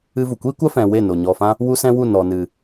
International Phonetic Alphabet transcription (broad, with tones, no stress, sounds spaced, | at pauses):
ɨ˦ v u˨ kʷ iː˦ kʷ a˦ f ɛ̃˨ w e˦˨ n o˨ ɲ ɔ˨ f ã˦ | w u˦ s ɛ̃˦ w u˦˨ n ɔ˨ n ɨ˨